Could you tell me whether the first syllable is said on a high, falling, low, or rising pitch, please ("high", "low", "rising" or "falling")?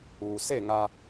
low